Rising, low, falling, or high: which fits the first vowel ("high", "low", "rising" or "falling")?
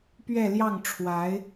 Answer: falling